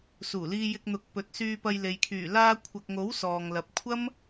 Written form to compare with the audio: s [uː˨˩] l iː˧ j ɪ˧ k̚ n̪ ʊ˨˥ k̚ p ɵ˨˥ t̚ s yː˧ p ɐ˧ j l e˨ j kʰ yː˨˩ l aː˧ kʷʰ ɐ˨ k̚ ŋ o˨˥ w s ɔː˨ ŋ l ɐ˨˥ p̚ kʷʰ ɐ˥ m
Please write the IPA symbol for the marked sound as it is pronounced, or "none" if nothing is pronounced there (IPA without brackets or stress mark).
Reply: uː˨˩